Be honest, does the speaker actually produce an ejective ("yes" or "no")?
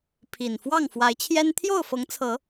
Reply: no